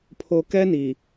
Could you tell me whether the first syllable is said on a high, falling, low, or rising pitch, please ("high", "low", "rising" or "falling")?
low